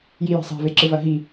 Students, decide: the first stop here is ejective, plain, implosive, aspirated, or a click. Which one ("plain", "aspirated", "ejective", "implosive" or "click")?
click